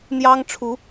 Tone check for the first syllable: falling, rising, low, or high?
high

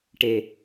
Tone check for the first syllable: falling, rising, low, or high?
low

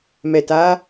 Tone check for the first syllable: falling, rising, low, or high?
low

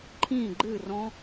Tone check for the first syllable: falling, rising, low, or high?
falling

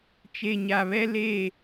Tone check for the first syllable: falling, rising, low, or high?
low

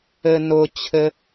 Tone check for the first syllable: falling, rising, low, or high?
high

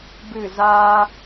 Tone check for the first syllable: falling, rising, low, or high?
falling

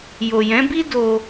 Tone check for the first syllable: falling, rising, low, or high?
low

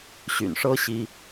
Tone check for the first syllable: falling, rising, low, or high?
low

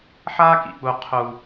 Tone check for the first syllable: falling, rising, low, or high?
high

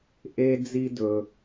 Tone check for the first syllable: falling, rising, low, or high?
high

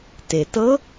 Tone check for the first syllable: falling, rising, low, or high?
low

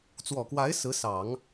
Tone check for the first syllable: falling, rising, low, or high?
low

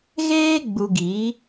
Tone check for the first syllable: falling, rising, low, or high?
high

